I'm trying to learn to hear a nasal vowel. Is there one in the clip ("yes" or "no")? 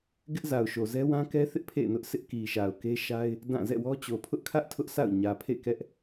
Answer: yes